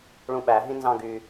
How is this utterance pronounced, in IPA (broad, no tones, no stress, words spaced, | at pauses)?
ɭũɓæɦĩ nzɑ̃ɡy